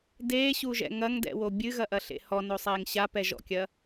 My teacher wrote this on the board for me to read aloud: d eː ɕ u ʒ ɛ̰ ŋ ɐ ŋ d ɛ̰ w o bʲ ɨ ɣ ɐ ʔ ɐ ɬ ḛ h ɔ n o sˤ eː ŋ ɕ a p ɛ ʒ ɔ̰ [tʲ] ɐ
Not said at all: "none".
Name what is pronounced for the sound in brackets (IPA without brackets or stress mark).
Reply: kʲ